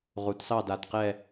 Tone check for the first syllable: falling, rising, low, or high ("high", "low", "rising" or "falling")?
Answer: rising